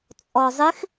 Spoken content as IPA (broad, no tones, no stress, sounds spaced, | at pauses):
t͡sʼ ɔ zˤ ɪ x